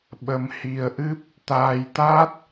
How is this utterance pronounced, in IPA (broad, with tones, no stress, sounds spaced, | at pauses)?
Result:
ɓ ə˧ m h i˧ ə̯ ʔ ɨ˦˥ p̚ | t̪ aː˧ j t̪ a˦˥ t̚